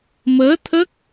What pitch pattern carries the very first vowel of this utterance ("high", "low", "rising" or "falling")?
rising